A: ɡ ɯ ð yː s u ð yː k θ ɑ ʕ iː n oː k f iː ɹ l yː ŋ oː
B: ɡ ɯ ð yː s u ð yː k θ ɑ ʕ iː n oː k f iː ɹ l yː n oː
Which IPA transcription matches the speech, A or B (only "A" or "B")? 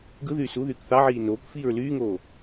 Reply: A